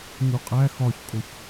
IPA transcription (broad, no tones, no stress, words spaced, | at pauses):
ɲuqʼæ xɒçkʼoç